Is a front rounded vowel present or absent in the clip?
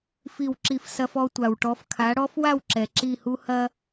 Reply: absent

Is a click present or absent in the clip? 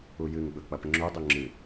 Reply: present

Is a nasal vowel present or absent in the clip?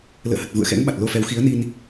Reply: absent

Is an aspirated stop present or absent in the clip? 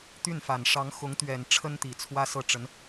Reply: present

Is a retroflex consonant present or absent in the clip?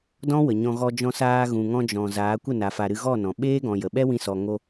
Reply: absent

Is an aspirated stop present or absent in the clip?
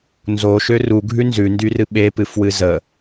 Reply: absent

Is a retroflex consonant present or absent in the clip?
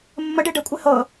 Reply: present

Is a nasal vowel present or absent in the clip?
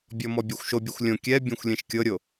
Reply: present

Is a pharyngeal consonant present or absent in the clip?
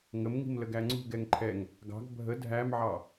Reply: present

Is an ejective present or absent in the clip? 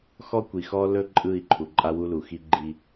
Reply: present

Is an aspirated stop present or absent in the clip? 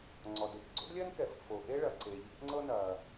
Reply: absent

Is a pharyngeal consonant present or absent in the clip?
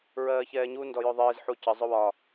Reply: present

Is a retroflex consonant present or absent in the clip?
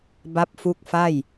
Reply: absent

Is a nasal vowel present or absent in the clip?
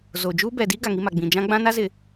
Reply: present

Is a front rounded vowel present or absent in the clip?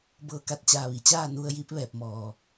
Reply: absent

